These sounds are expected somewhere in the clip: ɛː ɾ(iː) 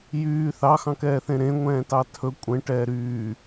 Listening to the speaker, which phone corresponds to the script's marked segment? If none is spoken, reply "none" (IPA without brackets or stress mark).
yː